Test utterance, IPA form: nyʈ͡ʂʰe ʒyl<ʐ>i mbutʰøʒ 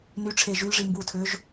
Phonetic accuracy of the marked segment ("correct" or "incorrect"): correct